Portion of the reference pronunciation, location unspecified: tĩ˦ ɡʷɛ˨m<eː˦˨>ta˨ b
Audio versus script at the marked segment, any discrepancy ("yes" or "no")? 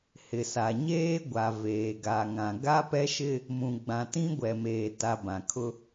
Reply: yes